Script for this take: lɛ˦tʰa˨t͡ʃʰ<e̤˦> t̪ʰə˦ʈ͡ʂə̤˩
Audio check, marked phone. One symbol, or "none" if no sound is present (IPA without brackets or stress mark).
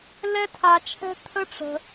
ɛ̤˦